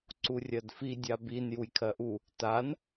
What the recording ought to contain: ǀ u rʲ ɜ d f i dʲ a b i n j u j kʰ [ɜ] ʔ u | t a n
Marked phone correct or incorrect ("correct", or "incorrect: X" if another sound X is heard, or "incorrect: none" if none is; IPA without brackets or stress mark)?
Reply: correct